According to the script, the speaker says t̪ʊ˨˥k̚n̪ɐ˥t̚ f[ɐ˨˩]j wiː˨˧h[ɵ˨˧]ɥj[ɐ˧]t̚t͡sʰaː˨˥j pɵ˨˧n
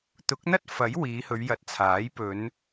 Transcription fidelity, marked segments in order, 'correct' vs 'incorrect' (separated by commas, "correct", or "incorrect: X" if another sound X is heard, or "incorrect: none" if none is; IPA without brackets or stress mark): incorrect: ɐ˨˥, correct, incorrect: ɐ˨˥